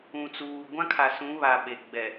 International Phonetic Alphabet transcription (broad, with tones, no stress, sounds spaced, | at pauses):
ũ˨ t͡s uː˨ ɡʷ ã˦ kʰ a˨ s ũ˨˦ β a˨ ɓ e˨ ɡ͡b ɛ˨